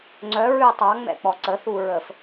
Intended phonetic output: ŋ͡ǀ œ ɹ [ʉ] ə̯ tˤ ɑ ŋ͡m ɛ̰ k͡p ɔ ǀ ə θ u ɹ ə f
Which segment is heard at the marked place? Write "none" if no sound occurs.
ʉ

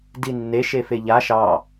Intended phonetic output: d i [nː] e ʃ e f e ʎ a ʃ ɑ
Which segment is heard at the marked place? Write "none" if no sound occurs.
nː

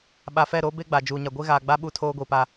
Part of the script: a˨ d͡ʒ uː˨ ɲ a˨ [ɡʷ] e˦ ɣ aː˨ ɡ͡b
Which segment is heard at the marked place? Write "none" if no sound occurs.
ɡʷ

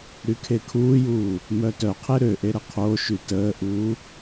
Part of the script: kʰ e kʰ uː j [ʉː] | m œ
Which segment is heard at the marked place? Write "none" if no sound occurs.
uː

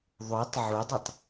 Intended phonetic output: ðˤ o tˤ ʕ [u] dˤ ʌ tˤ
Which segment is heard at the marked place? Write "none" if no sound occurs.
u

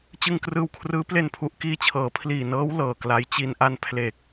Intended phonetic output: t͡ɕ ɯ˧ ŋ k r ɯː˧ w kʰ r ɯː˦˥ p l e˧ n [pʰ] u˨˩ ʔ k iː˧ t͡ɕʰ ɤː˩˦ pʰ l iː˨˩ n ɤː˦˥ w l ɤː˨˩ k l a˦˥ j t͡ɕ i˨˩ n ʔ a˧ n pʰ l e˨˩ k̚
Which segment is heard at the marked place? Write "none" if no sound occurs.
pʰ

